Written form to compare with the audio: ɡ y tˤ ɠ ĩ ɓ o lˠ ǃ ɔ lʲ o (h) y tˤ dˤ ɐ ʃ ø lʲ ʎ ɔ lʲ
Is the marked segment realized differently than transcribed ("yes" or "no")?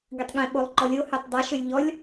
no